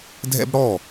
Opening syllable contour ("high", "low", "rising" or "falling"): high